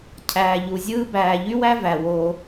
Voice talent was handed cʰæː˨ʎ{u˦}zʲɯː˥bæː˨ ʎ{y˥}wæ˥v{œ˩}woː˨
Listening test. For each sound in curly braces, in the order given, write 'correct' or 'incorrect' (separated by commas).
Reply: incorrect, correct, incorrect